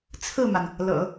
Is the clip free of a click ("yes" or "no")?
yes